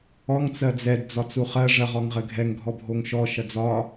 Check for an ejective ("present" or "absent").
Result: absent